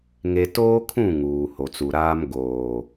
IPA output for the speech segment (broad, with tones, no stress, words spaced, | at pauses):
ŋe˨toː˦kʰũ˦˨ ŋuː˨ho˨t͡su˨ ɾaː˦m ɡoː˨